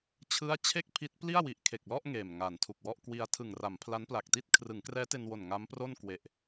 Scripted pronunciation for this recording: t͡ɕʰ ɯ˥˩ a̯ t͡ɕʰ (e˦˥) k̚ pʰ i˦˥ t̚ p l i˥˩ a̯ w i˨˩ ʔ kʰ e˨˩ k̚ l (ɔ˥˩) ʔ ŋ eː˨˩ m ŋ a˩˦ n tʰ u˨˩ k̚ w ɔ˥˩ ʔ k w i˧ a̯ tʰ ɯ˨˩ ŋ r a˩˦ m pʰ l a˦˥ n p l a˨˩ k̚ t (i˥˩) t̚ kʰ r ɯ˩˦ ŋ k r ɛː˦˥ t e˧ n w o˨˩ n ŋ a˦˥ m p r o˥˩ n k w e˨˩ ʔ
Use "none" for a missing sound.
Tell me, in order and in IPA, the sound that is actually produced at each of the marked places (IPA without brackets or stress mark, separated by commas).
e˥˩, ɔ˥˩, i˥˩